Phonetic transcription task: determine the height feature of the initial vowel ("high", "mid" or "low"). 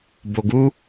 mid